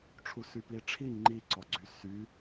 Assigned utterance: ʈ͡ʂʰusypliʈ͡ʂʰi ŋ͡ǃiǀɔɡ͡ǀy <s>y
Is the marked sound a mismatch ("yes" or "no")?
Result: no